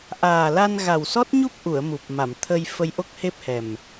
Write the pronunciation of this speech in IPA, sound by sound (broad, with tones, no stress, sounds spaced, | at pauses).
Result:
ʔ aː˨˩ l a˧ n ɣ a˨˩ w s ɔ˦˥ t̚ ɲ u˦˥ p̚ ʔ u˨˩˨ ə̯ m u˨˩ p̚ m a˨˩˨ m t̪ʰ ə˧ j f ə˧ j ʔ o˦˥ k̚ h e˦˥ p̚ h ɛ˨˩ m